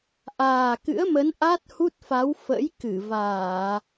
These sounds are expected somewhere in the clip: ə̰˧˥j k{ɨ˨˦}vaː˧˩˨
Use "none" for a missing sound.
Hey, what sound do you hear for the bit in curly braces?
ɨ˧˩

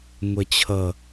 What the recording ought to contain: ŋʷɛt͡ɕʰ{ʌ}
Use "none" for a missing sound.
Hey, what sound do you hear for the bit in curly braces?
ʌ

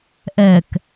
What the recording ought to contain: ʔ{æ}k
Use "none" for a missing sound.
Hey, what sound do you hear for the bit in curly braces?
ɛ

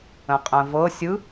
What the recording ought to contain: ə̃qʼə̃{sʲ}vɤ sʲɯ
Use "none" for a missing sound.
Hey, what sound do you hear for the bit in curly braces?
none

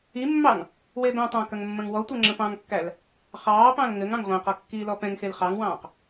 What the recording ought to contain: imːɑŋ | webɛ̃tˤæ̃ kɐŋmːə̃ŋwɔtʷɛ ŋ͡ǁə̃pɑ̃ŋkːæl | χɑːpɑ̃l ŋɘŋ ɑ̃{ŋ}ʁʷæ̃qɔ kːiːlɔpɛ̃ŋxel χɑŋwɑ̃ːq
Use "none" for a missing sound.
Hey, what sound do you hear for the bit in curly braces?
ŋ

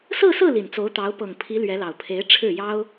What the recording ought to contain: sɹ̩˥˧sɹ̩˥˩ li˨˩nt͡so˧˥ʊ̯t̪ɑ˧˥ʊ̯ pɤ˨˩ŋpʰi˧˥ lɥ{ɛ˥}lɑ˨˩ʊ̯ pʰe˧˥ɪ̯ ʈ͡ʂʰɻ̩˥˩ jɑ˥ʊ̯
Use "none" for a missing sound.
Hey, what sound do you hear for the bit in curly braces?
ɛ˧˥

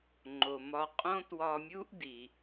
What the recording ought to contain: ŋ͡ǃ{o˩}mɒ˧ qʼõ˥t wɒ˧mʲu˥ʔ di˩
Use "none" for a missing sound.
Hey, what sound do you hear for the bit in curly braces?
o˩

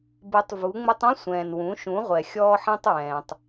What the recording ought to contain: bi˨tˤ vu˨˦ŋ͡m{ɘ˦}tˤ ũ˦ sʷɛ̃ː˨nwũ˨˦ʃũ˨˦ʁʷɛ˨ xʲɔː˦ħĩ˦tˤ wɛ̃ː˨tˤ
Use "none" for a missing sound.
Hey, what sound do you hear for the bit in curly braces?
ɘ˦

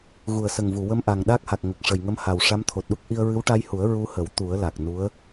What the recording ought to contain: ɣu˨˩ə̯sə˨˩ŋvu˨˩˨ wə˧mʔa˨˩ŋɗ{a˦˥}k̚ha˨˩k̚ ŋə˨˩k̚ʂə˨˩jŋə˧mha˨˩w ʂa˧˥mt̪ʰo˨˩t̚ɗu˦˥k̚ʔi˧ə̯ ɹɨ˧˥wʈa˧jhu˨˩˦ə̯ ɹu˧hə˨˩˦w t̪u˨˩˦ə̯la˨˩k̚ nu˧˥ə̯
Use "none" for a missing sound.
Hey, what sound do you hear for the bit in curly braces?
a˦˥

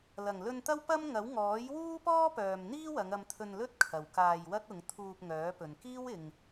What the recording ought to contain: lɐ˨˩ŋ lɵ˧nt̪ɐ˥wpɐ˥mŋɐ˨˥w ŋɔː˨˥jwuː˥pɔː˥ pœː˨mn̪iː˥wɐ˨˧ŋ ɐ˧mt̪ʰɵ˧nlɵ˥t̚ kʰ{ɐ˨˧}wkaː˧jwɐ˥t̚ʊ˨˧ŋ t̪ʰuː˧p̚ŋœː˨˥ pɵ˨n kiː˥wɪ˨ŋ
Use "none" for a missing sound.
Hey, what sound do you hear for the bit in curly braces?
ɐ˨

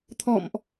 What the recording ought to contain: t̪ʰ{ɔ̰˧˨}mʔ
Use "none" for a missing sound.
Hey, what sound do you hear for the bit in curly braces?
ɔ̰˧˨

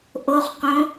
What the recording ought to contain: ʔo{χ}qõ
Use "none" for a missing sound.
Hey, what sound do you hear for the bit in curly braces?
χ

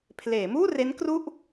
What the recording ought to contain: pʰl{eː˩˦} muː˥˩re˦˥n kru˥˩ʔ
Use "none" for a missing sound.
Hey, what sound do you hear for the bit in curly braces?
eː˩˦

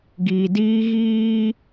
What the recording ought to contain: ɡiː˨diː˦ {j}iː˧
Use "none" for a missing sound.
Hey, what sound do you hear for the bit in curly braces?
ɣ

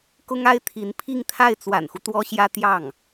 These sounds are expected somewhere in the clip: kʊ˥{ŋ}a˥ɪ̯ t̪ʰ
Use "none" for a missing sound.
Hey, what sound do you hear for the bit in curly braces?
ŋ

